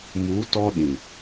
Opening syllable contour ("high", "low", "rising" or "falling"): rising